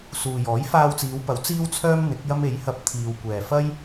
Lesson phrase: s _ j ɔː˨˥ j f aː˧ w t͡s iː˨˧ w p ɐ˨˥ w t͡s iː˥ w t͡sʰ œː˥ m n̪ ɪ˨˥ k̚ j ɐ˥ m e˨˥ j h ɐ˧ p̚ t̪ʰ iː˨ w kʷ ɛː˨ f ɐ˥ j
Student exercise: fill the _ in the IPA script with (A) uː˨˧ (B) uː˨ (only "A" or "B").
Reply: B